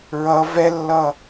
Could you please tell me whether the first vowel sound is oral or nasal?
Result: oral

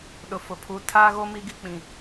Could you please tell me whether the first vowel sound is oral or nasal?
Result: oral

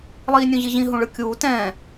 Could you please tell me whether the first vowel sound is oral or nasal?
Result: oral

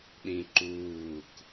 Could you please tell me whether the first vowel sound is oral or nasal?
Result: nasal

